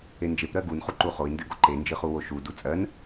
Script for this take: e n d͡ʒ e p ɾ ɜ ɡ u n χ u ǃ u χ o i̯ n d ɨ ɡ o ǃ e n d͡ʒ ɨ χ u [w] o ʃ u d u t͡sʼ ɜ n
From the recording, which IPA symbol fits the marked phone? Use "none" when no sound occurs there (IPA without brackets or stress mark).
w